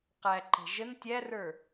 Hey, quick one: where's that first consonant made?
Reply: uvula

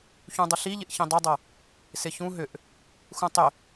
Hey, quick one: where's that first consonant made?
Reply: palate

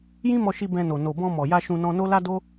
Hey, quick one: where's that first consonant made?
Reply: palate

